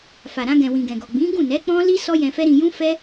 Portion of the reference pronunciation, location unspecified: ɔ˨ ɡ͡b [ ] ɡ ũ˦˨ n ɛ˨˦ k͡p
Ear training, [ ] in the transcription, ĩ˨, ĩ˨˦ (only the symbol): ĩ˨˦